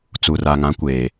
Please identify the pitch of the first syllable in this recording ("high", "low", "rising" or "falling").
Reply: low